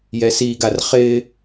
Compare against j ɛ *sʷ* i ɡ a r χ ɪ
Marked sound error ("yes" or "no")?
yes